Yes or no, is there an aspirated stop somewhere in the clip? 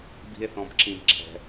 yes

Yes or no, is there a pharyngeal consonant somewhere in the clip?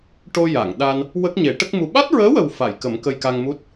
no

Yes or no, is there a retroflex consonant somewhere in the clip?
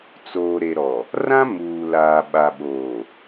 no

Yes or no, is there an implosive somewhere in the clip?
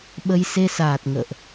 yes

